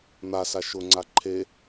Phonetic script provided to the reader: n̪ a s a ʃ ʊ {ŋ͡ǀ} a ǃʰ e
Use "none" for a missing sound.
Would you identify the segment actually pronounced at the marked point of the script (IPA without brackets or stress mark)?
ŋ͡ǀ